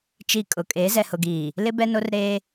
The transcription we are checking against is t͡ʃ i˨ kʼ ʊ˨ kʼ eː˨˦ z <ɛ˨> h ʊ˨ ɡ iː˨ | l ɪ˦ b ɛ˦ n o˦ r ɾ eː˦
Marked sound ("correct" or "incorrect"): correct